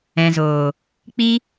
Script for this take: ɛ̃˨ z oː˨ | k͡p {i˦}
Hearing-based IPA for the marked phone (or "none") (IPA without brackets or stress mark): i˦